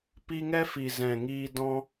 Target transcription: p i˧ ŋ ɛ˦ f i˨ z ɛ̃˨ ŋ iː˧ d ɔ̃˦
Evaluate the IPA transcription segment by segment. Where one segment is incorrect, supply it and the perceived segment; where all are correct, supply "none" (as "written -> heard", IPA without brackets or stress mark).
none